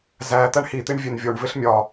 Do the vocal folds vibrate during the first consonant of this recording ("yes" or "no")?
yes